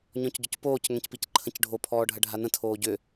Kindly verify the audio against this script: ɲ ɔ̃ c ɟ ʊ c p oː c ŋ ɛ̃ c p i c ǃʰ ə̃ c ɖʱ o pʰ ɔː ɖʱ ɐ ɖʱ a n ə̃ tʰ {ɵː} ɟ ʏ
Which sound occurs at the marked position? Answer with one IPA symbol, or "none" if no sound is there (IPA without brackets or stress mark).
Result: oː